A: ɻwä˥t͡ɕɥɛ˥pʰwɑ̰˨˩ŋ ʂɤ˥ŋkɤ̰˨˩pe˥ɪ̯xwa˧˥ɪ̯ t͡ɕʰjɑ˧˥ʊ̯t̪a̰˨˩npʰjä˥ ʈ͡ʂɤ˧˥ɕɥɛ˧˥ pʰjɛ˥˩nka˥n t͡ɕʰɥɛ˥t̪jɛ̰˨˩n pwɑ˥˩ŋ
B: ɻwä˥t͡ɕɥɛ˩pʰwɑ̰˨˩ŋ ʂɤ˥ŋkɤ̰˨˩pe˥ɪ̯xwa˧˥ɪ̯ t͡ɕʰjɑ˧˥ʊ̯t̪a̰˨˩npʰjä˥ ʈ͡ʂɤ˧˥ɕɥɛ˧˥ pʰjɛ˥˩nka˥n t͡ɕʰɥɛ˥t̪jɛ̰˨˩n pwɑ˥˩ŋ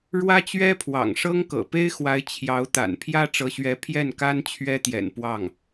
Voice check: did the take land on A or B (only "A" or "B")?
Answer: A